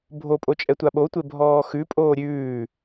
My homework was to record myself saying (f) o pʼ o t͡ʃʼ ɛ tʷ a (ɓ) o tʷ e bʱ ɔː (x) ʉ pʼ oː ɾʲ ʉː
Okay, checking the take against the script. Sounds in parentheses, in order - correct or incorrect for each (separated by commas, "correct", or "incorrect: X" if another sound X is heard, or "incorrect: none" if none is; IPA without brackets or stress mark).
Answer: incorrect: bʱ, correct, correct